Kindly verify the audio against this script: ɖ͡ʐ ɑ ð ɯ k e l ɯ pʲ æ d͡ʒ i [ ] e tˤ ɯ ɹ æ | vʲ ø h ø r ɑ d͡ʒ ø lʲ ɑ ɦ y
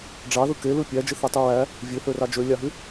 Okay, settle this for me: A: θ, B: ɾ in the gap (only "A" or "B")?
A